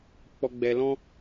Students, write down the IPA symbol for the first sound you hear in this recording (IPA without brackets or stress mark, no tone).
k͡p